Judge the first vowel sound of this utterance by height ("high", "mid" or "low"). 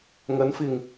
low